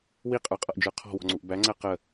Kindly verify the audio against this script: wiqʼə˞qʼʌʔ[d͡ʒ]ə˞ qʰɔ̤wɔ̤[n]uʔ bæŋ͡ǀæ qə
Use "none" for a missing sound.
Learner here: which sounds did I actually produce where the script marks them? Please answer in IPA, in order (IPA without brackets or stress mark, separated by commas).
d͡ʒ, ŋ͡ǀ